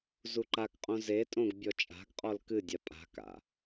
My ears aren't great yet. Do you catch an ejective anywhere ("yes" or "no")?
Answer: yes